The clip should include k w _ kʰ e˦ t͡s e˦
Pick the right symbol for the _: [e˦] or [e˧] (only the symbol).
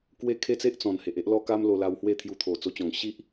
e˦